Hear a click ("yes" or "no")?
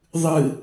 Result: no